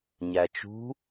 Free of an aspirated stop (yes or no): yes